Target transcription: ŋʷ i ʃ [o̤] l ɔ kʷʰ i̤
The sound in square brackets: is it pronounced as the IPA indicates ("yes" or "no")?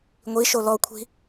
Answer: no